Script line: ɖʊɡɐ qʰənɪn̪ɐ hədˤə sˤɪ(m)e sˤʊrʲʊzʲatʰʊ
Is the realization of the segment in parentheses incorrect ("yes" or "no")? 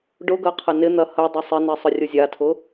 yes